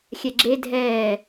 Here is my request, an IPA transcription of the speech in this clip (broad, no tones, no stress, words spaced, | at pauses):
xʲɛɡ͡ǁe dʱɛː